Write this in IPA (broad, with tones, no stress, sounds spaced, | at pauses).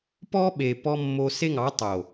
p ɔ˦ ɓ e˨ p ɔ˦ mː o˦ s e˦ ŋ ɑ˨˦ tˤ o˨